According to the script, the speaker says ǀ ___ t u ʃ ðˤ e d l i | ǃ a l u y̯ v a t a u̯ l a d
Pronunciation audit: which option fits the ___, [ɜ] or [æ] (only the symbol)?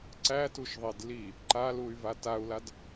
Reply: æ